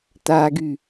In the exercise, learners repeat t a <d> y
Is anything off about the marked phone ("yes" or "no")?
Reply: yes